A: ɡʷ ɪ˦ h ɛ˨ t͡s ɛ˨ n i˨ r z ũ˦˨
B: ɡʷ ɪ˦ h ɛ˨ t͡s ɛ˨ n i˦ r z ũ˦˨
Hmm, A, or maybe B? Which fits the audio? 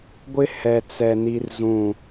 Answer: B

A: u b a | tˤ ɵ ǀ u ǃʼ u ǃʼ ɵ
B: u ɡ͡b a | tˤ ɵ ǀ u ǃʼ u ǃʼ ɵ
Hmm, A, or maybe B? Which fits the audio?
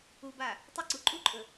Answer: A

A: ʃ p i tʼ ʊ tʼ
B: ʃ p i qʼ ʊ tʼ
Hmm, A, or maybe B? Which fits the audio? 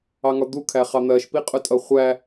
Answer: B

